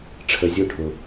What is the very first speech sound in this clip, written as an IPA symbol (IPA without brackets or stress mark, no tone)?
ʈ͡ʂʰ